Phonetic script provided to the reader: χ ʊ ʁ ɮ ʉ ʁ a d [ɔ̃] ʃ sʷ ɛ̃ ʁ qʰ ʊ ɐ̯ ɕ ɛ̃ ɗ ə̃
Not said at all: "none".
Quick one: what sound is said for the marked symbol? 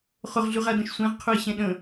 ə̃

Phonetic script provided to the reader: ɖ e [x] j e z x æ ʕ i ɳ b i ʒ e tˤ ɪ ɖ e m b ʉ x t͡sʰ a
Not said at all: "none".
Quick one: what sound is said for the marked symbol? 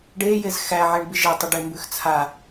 none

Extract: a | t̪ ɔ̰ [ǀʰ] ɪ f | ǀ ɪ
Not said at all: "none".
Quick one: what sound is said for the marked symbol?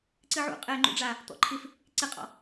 ǃʰ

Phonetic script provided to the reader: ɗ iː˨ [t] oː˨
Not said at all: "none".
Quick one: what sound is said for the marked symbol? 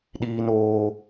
n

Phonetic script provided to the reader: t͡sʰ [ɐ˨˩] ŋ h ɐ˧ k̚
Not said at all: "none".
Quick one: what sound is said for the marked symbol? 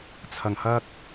ɐ˨˩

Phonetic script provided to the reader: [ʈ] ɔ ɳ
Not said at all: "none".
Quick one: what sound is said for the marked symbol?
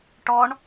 ʈ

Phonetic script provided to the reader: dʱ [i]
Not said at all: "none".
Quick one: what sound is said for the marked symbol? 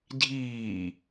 iː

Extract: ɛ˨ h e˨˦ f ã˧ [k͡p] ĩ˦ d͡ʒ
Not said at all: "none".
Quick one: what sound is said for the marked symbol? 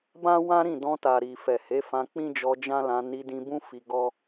k͡p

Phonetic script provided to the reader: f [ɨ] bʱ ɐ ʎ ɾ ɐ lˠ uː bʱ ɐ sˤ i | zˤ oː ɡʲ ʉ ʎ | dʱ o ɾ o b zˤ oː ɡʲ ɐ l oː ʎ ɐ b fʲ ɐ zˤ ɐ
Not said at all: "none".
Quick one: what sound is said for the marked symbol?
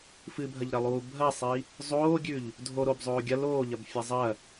ɨ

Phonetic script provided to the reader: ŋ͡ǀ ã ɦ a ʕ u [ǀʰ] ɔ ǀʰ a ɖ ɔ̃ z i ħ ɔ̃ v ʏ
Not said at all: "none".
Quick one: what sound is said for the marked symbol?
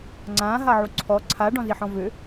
ǀʰ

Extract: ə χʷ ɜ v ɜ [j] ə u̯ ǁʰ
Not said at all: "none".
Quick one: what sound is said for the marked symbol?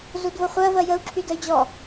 j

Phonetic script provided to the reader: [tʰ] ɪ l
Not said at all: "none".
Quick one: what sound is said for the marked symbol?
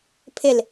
pʰ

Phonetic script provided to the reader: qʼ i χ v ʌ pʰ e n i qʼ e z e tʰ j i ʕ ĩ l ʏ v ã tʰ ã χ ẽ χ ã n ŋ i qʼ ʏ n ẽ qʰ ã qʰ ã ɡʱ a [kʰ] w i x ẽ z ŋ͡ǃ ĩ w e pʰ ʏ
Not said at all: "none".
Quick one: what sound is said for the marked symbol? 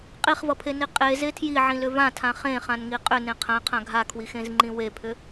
kʰ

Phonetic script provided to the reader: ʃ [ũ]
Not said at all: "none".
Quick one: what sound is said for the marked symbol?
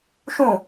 ũ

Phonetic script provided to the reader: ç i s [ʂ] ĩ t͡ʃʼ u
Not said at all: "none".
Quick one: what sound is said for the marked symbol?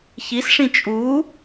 ʂ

